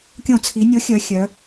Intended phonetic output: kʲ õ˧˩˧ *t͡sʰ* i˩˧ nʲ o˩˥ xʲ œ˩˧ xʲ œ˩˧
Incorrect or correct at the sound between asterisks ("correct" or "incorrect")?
correct